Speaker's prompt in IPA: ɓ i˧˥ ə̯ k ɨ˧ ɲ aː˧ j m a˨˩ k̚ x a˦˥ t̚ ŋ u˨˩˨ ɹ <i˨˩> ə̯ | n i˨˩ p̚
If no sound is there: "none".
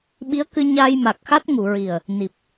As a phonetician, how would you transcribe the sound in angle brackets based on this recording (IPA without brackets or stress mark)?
i˨˩